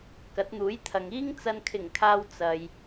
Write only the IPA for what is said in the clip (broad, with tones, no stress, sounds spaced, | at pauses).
k ɐ˨˥ t̚ n̪ uː˨˥ j t̪ʰ ɐ˨ ŋ iː˥ ŋ t͡s ɐ˨ n kʰ ɪ˨˩ ŋ kʰ aː˨ w t͡s ɐ˨ j